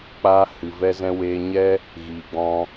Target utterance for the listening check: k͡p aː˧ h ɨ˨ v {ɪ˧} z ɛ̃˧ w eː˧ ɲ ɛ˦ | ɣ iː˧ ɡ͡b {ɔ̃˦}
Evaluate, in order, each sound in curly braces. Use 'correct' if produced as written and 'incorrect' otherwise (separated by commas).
incorrect, correct